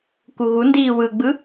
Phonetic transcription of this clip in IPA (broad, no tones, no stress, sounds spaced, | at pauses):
k u ɣ u n d iː w ɯ ɡ͡b ɯ